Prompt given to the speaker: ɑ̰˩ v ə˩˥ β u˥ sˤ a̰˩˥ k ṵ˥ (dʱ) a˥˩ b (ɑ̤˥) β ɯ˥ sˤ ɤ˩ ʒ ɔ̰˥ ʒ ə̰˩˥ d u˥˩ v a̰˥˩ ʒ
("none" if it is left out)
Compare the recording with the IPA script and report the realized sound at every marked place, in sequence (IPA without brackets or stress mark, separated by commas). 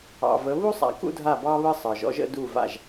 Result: dʱ, ɑ˥